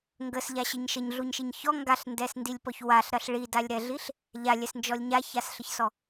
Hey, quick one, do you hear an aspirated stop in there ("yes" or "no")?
no